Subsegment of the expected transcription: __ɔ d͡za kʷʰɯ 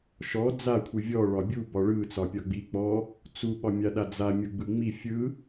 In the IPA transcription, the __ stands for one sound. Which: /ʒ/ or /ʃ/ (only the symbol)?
ʃ